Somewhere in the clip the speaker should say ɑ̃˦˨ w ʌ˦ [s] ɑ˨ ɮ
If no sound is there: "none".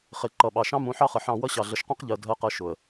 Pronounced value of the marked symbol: ɕ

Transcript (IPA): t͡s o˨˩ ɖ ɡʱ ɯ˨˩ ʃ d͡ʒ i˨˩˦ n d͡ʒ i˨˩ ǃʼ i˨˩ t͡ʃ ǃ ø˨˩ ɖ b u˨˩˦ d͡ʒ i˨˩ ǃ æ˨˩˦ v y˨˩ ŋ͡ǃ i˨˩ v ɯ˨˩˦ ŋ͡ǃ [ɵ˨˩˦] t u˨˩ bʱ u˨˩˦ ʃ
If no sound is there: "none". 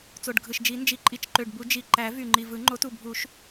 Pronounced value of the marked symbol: o˨˩˦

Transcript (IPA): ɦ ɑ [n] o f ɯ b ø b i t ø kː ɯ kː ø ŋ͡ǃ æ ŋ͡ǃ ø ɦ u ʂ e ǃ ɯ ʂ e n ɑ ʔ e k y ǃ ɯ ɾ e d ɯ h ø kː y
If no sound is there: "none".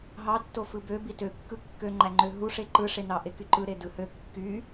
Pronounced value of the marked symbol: tː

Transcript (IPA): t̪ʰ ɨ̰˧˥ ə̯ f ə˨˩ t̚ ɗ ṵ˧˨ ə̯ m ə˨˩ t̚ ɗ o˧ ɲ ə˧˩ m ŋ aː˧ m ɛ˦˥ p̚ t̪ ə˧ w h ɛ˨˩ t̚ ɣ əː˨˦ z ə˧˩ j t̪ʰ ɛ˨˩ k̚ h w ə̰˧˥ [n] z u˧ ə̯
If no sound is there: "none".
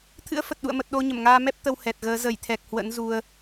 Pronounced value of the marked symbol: n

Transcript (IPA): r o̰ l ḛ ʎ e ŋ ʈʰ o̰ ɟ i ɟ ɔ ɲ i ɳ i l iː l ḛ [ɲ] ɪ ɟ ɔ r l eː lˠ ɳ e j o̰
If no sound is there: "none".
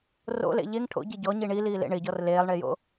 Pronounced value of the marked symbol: ɳ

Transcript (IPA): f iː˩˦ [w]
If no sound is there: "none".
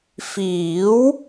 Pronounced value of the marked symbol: w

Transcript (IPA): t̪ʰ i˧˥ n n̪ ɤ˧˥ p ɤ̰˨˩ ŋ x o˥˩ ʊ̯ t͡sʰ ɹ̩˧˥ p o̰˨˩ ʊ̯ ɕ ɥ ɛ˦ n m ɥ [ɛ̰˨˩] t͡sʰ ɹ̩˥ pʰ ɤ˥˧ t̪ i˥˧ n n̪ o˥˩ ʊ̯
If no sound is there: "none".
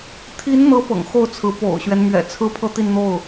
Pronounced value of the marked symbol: ɛ̰˨˩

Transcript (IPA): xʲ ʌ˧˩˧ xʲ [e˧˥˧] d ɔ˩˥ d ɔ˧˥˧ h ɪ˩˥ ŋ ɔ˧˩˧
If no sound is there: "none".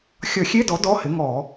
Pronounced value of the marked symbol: e˧˥˧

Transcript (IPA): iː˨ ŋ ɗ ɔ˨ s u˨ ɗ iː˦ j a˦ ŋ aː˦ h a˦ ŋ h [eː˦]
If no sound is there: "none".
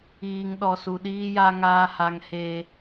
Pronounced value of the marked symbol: eː˦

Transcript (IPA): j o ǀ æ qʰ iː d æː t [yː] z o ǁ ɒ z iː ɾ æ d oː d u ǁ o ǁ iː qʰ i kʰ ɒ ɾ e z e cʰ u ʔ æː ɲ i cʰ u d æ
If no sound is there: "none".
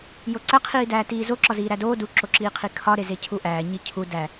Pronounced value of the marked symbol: iː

